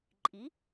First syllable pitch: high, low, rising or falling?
rising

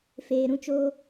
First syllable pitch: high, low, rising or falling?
low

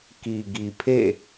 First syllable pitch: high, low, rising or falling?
low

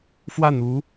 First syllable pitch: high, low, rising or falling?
falling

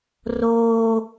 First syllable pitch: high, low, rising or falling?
high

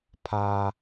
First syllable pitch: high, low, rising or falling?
high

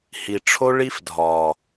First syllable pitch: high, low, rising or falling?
low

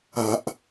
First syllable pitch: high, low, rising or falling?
low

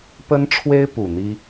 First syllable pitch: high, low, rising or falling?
high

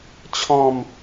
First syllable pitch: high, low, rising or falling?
falling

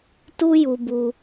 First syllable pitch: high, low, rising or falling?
high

